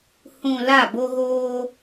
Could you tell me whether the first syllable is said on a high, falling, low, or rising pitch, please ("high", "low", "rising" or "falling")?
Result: low